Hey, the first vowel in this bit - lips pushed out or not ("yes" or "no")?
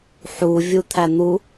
yes